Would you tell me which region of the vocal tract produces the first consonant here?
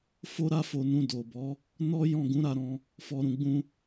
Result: lips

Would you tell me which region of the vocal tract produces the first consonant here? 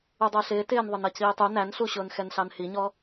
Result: tongue tip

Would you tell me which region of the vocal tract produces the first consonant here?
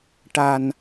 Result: retroflex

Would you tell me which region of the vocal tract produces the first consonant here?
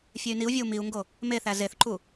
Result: lips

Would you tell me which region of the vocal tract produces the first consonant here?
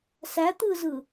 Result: tongue tip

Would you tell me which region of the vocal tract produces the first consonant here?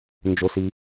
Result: tongue tip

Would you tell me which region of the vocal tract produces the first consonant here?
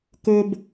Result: velum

